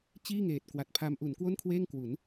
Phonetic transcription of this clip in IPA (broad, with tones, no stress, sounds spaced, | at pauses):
t͡ɕ iː˥˩ ŋ eː˨˩ t̚ k w a˨˩ t̚ pʰ a˦˥ m ʔ u˩˦ n k w o˥˩ n kʰ w eː˥˩ ŋ k w u˩˦ n